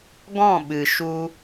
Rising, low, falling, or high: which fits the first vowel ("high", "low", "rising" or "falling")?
falling